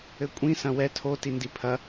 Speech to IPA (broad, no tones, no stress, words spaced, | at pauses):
ɘkʷʼĩ sɐ̃wɛ tʰo tindipʰɐ